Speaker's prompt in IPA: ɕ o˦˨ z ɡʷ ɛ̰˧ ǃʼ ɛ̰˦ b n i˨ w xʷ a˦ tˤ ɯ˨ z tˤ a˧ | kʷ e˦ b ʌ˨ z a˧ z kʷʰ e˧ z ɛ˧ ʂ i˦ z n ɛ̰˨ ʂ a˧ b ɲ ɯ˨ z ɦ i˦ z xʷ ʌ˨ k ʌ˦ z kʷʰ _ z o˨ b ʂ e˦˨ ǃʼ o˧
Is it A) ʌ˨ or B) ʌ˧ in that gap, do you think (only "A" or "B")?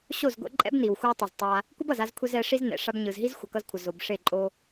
A